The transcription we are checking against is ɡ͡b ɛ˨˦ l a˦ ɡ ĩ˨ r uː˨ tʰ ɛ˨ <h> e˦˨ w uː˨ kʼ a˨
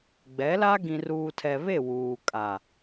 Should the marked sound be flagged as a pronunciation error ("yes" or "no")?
yes